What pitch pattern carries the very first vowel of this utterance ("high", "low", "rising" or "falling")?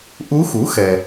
rising